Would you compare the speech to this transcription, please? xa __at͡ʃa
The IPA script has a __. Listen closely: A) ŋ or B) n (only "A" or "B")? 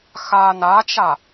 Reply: B